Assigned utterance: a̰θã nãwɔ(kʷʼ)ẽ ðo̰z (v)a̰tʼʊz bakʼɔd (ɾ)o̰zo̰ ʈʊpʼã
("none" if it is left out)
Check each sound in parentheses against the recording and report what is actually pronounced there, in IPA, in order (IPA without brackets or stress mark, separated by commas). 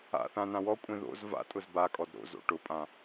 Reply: kʷʼ, v, ɾ